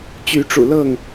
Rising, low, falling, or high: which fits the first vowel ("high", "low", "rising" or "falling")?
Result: rising